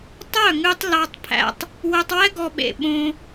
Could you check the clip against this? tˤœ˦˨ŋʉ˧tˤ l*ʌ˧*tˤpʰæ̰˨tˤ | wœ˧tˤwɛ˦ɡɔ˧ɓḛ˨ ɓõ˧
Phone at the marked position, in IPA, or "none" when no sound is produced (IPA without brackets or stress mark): ɑ˧